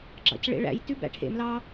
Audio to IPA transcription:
ɡ͡ǁ ɑ̰ c ɭ ḛ ɭ æ̰ j t ʉ b æ̰ ʈʰ ḛ m l ɑ

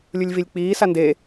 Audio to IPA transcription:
lʲ u lʲ v i lʲ k͡p iː s a n d e

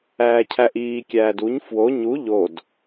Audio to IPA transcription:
æː cʰ æ ʔ iː kʲ æː d u ɲ f w o ɲ u ʎ o d

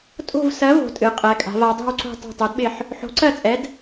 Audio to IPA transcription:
tʼ o̤˦˨ v s ɜ˨˥ v o̤˩˧ tʼ ɨ˩˧ qʼ ɛ˩˧ kʼ a̤˩˧ v a˩˧ dˤ ɛ̤˦˨ w ǀ o̤˦˨ tˤ a̤˦˨ tˤ o˨˥ d ɓ ɪ˦˨ ħ | ħ o̤˨˥ ǀ ɜ˦˨ t͡sʼ ɛ˨˥ d

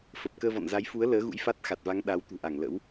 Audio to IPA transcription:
f ə˨˩ p̚ k əː˧ v ɔ̰˧˨ n z a˨˦ j f u˨˦ ə̯ l əː˨˦ ɣ ṵ˧˥ j f a˦˥ t̚ x a˨˩ t̚ v a˨˦ ŋ ɗ a˨˦ w t̪ ṳ˨˩ ʔ a˧˩ ŋ l ə̰˧˥ w

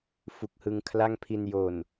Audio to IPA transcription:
f u˨˩ k̚ h ɯ˧ ŋ kʰ l a˥˩ ŋ pʰ i˧ n j o˨˩ n

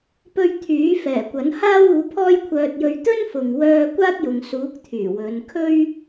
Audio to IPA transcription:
p ɵ˧ ɥ t̪ʰ yː˨˥ f ɛː˨˩ kʷ ɐ˨˥ n h aː˥ w uː˨˥ pʰ ɔː˥ j kʷʰ œː˧ t̚ j ɵ˧ ɥ t̪ ɵ˥ n f ʊ˨ ŋ w œː˧ kʷ aː˥ t̚ j ʊ˨˧ ŋ s uː˨˥ k̚ t̪ʰ yː˨˩ w ɵ˨˧ n kʰ ɵ˥ ɥ

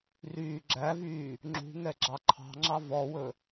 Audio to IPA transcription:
r yː ɡ͡ǁ æ v yː | ŋ͡ǁ ṳ ŋ ɛ ɡ͡ǁ ɑ ǃʰ ɑ̤ ŋ͡ǁ ɑ v ɔ w ɵ

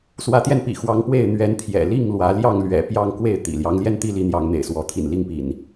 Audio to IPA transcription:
s w ä˨˦ t̪ j ɛ˧ n p ḭ˨˩ x w ɑ˨˦ ŋ p w e˥˨ ɪ̯ n̪ ɥ ɛ˨˦ n t̪ʰ j ɛ̰˨˩ l i˥˨ ŋ l w ä˨˦ l j ɑ˥˨ ŋ l ɥ ɛ̰˨˩ p j ɑ˥˨ ŋ k w e˥˨ ɪ̯ t̪ ḭ˨˩ l j ɑ˦ ŋ l j ɛ˦ n t̪ i˦ l i˨˦ n̪ j ɑ˨˦ ŋ n̪ ḛ˨˩ ɪ̯ s w ɔ˨˦ t̪ʰ ḭ˨˩ n l i˥˨ ŋ p ḭ˨˩ n

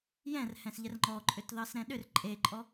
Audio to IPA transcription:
j ɛ̃ r h ɛ̃ s ʎ ɛ r ŋ͡ǃ ɔ ǃʼ ʏ t ð ɑ s ɾ ɛ̃ ɗ ʏ r ǃʼ e ǃʼ ɔ

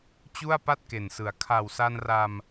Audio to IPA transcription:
t͡ɕ u˥˩ a̯ p a˥˩ t̚ k e˨˩ n s ɯ˩˦ a̯ kʰ a˨˩ w s a˧ n r a˧ m

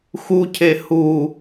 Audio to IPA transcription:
x u cʰ e h u

